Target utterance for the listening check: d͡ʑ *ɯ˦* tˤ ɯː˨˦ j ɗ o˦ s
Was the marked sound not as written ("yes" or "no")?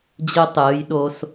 no